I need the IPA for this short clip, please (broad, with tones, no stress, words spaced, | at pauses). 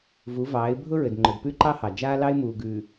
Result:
vu˨˦vɑː˨˦ɪ̯ bʱʊ˦ɹɘ˨dŋ͡ǃʊ˨d pʉ˦ǃɑ˦hɑ˨ d͡ʒaː˦lɑ˦ɪ̯muː˨ ɡʉ˨